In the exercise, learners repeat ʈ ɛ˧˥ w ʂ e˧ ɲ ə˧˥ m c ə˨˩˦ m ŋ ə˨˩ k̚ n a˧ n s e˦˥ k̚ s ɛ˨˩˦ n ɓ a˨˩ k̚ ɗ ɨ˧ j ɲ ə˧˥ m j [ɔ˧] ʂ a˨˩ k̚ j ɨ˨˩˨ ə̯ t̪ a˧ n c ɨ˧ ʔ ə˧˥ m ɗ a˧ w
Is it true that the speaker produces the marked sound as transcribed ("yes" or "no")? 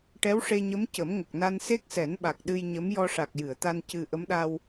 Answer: yes